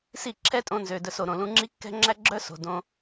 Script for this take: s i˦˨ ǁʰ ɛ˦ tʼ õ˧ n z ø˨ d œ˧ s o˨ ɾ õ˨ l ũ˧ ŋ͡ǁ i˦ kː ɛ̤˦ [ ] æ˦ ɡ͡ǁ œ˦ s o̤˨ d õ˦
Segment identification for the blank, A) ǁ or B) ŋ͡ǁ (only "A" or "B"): B